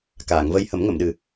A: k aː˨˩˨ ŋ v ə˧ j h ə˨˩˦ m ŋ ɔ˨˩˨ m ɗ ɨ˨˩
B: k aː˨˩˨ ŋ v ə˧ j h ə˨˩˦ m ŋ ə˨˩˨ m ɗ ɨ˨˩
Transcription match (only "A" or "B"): B